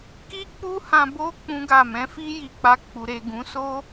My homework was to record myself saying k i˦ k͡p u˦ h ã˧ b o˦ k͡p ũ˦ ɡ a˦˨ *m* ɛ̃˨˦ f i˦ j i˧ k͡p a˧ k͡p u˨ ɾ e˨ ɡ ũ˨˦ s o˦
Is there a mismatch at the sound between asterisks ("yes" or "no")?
no